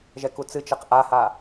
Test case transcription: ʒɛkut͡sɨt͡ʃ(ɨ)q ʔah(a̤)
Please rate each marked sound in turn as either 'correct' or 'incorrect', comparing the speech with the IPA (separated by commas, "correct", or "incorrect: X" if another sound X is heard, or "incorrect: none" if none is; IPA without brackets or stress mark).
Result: incorrect: ɛ, incorrect: a